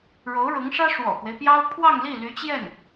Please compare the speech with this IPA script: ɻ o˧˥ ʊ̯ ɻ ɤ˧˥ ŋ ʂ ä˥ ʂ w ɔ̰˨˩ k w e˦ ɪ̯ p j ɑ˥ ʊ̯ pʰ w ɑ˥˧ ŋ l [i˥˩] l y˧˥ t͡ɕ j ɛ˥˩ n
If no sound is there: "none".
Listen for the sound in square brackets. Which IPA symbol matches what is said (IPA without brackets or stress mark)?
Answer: i˥˩